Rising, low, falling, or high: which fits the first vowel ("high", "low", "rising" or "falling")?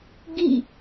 falling